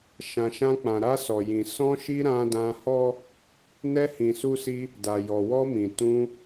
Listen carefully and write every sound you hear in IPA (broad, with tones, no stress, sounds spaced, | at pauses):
ʃ ã˨ ʃ ã˧ k͡p ã˨ ɾ a˧ s ɔ˨ j ĩ˨ s ɔ̃˧ ʃ i˧ ɾ ã˧ d ã˧ h ɔ˦ | n ɛ˧ h ĩ˨ s u˧ s i˧ | d a˨ j ɔ˨ w ɔ˧ m ĩ˨ t ũ˧